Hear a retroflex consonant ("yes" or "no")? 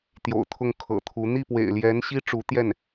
yes